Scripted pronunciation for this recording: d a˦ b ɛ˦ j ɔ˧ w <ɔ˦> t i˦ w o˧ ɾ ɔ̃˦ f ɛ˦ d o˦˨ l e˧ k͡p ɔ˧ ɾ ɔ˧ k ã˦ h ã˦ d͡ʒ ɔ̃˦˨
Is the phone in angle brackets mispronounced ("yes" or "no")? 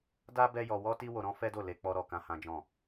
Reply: no